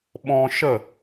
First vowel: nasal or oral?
nasal